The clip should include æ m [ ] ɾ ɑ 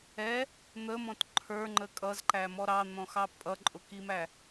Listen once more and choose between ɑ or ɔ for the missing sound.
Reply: ɔ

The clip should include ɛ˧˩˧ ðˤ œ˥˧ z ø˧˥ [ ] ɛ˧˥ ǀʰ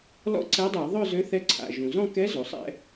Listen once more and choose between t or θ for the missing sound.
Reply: θ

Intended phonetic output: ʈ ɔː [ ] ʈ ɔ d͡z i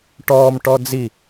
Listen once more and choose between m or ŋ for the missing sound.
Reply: m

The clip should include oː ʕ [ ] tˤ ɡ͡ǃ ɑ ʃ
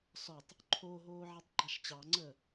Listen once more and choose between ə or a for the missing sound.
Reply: a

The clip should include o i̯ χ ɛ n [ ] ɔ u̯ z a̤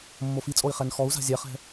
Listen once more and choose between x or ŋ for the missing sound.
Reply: x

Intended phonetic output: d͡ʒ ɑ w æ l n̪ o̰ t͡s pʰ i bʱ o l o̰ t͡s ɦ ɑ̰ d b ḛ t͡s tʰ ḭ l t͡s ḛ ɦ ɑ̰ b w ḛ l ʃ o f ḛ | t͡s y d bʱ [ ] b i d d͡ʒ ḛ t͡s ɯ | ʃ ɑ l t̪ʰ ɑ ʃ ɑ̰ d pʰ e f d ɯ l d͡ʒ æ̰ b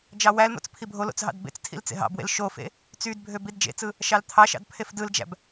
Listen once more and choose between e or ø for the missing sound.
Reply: ø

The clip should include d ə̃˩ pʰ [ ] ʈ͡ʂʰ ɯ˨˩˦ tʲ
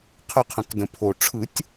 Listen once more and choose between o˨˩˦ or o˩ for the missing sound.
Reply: o˩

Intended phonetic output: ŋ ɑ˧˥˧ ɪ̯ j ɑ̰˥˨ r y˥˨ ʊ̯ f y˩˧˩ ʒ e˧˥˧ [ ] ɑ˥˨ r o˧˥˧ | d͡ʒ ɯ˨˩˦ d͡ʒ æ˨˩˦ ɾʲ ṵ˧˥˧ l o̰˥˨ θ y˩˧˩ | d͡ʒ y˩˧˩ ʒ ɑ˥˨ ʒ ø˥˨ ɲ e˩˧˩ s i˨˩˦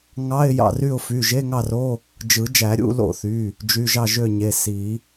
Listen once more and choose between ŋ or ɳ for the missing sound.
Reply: ŋ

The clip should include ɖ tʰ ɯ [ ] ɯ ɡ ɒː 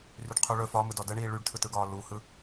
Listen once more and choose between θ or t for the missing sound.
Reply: t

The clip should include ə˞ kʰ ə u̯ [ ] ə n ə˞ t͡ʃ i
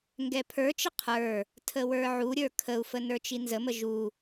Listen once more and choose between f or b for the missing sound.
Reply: f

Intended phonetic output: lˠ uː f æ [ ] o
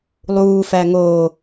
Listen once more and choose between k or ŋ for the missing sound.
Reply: ŋ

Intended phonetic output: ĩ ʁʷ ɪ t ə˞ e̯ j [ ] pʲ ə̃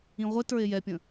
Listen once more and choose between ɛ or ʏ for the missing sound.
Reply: ɛ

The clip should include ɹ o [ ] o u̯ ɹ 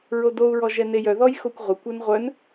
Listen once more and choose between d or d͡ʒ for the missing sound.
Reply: d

